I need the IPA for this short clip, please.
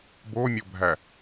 bomʲobʱæ

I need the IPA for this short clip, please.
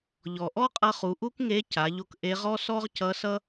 ʎɔ˩ʔɔ˥qʼʌ˧χu˩˧ ʔu˥kŋe˧˥ ca˩˧ʎo˧k ʔe˧˥ʁɔ˥ sɔ˥ʁcʌ˧˥sʌ˥

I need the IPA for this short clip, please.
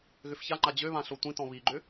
ɣʏfçaŋ͡ǃa d͡ʑøβã ɬotʷĩtɔ̃ βiɡ͡ǃʏ

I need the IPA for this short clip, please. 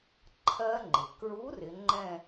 ǃʰɜ˦˥ŋ͡ǃɪ˩ kɹu˨˥rɪ˩˧ ŋ͡ǃɛ̃˥˧

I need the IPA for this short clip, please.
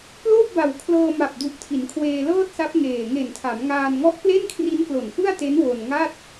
ploː˥˩p̚ba˨˩wkʰlɤː˧ma˨˩p̚ du˨˩ʔtʰi˩˦nkʰweː˧ lɤː˥˩t̚sa˦˥p̚ ŋeː˨˩ ŋe˨˩ntʰa˩˦mŋaː˧n ŋɔ˦˥ʔple˥˩nkʰri˦˥nklo˨˩n fɯ˥˩a̯te˦˥n wo˧nŋa˥˩t̚

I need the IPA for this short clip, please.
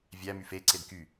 vʲæ myfe ǀedky

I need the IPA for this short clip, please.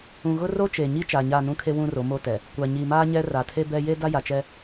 ũ˨ɣʊ˦ro˦ t͡ʃe˨ɲi˦ t͡ʃa˨ɲa˦˨ nũ˦kʰe˦ wũ˦ro˨˦mo˦tɛ˨ | kʷa˨ɲi˨maː˦ɲɛ˦ ra˨tʰe˦bɛ˦ je˦da˦ja˨t͡ʃɛ˦

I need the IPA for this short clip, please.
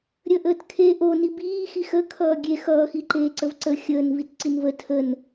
ɾʲəʔəːt kʰeːʔoni biːxi xə kʰʌːɡʲe xʌːxiǃeːǀəv ǀə xʲəːnvit ǀinvə tʰən

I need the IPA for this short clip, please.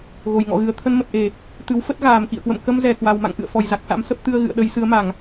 ɣo˨˩jŋɔ̰˧˨ɣɨ˨˩ə̯ t̪ʰə˧nmə˨˩t̚ ʔe˧˩˨ | t̪ɨ˨˦wfə˦˥t̚ ɣaː˨˩mkḭ˧˨ə̯kwə̰˧˨m kə˧mzɛ˧˩ kwa˨˩wma̰˧˨ŋ ʔɨ̰˧˨ə̯fɔ˨˩jza˨˩k̚sa̰˧˥m sə˦˥p̚t̪ɨ˧ə̯ɣɨ̰˧˨ə̯ɗə˨˦j sɨ˨˦ə̯ma˧˩˨ŋ

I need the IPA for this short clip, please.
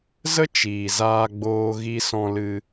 zə˦ t͡ʃiː˨ zaː˧ɡ͡boː˧ ɣi˧sɔ̃˧lɨ˧

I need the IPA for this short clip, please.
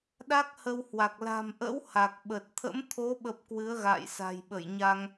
ɗa˦˥k̚hə˧whwa˨˩k̚ la̤˨˩mʔə̰˧˥w ha˨˩k̚ɓə˨˩t̚ t̪ʰə̰˧˥mt̪ʰo˨˦ɓə˨˩p̚ kwɨ˨˦ə̯ɣa̰ː˧˨jsa̤˨˩jɓə˧˩j ɲa˧ŋ

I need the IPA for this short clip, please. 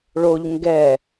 ɭoʎ ŋɡɛ

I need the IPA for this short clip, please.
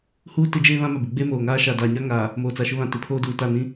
huː˦ tɪ˦d͡ʒeː˦βã˦ma˨ bɪ˨ɡ͡beː˦moː˨ŋaː˦ ʃa˨daː˨ ɲa˦ŋaː˨ | moː˨t͡sa˨ʃʊ˦ βã˨ tɪ˨˦pʰoː˦duː˨ ta˦˨nĩ˦

